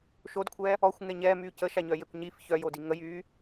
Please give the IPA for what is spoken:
ʃ o d kʷʰ ɛː | ɔ xʷ ŋ ɛ ɲ ɛː m yː c ə ʃ a ɲ œ j e kʷ ɲ i f ç œ j o d i ŋ ə j yː

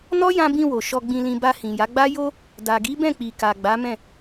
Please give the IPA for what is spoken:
n ɔ˦ j ã˧ b ĩ˧ w o˨ ʃ ɔ˧ ɡ͡b ĩ˧ l ĩ˧ b a˧ h ĩ˨ j a˨˦ ɡ͡b a˦ j o˦ | d a˨ ɡ i˨˦ b ɛ̃˦˨ k͡p i˨ k a˨ ɡ͡b a˨˦ m ɛ̃˦˨

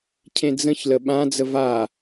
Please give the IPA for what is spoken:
cʰ ẽ d͡z ə̃ ç l ə ɓ ã d͡z ə v a

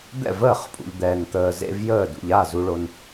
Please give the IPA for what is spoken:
d̪ ɛ̰˥˩ v əː˥˩ χ pʼ ṵ˨ ʎ d̪ ɛː˨ n t̪ əː˨ z ḛ˦ v j əː˥˩ d ṵ˨ ʎ a˥˩ z u˨ ɭ o˨ n

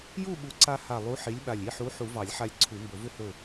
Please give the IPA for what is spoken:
j u˥˨ ɓ u˨˥ ǀ a˦ h a˧˩ lˠ u˨˥ ħ i˨˥ lʲ ɓ a˧˩ lʲ i˥˨ ħ u˨˥ ħ u˨˩˦ v ɑ˨˩˦ lʲ ħ a˧˩ lʲ ǀʰ u˨˩˦ m b ɵ˨˩˦ v ʏ˦ h ɵ˧˩

